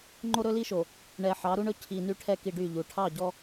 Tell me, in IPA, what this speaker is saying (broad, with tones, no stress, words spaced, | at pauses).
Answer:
ŋ͡ǃo˦ɾɵ˦li˦ʃo˨ | ɳɛ˨ħɑ˨˦ɾu˦ɳɵ˦ cʰi˨ny˦ ʈʰɛ˦ki˨ ɖy˦˨ʎu˨ ʈʰɑ˦˨ɟɔ˦